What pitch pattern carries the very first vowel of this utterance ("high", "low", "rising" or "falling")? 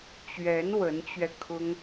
rising